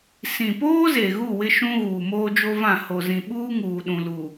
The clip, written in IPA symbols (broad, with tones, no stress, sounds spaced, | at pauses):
s ĩ˨ p oː˦ z e˨ ɣ u˦˨ w ɪ˦ ʃ ũ˦ ɣ uː˨ m oː˦ d͡ʒ o˦ v ã˦˨ h o˨ z ĩ˨ ɓ uː˦ ŋ uː˨ ɗ ũ˨ l u˨